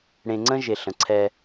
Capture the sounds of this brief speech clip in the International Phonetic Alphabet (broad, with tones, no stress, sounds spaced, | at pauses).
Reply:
ɽ ẽ˨ ŋ͡ǀ ə̃˦ ʒ e˨ ɬ ə̃˨ ǀʰ ɛ˦